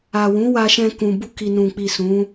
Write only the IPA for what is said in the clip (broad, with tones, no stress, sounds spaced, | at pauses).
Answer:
a˨ w ũ˨˦ w a˧ ʃ ɛ̃˧ k ũ˨ b u˧ k i˨ n ũ˨ k͡p i˨ s ũ˨˦